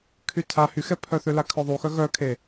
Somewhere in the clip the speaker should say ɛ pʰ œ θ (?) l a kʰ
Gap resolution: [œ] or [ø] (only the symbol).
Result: ø